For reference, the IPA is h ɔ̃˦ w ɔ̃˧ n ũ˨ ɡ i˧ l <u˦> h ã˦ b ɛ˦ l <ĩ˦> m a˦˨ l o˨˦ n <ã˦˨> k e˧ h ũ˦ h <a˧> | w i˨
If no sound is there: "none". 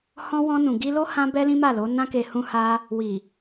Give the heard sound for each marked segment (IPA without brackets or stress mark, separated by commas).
o˦, ĩ˦, ã˦, a˦